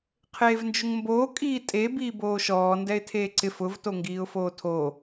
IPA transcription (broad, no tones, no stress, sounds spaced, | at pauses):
qʰ eː v n d͡ʒ ʊ ŋ m b oː kʼ iː tʼ e b iː b oː ʃ ɔː n d ɛ ɪ̯ tʰ eː ǀ ɪ f ʊ v t o ŋ ɡ iː ʊ̯ f oː tʰ o